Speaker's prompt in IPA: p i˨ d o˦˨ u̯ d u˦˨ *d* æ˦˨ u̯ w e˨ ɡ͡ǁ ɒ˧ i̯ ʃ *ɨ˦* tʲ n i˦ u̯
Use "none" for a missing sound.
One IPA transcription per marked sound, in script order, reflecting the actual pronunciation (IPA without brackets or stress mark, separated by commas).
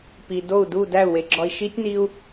d, i˦